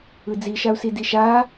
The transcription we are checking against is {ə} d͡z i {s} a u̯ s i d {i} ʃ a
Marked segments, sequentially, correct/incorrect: incorrect, incorrect, correct

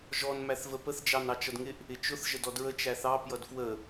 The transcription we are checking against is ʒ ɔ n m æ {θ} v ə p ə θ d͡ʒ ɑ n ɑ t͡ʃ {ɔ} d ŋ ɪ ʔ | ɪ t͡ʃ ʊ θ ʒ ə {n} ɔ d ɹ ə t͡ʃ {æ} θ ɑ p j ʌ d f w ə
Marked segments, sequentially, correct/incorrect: correct, incorrect, incorrect, correct

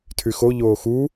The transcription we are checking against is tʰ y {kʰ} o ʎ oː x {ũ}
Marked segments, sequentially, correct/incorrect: incorrect, incorrect

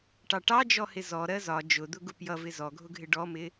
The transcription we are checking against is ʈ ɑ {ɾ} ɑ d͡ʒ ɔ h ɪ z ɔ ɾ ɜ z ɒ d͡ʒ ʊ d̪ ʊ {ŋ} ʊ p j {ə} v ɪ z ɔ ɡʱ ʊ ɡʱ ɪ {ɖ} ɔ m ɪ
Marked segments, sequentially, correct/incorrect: incorrect, incorrect, incorrect, correct

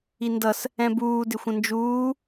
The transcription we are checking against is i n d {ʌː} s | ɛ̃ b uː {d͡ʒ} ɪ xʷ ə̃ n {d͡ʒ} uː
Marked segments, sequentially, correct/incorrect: incorrect, incorrect, correct

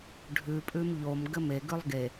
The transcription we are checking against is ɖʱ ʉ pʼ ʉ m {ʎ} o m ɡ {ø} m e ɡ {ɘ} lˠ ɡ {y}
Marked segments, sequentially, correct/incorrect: correct, incorrect, incorrect, incorrect

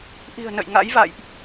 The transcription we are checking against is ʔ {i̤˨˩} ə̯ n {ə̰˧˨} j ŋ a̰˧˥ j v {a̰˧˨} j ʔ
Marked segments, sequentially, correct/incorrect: correct, correct, correct

